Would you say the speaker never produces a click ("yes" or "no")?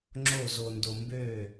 no